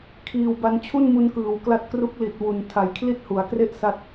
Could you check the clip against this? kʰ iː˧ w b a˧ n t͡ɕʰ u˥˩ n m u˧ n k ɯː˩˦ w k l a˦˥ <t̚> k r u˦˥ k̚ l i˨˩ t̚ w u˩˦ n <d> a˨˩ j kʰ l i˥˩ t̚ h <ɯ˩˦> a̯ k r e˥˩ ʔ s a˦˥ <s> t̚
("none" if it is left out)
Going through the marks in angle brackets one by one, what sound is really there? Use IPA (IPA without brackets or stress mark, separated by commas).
t̚, tʰ, u˩˦, none